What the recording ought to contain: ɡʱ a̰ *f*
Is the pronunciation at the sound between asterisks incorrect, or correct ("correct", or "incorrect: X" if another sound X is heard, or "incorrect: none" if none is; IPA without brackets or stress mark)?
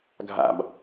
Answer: incorrect: b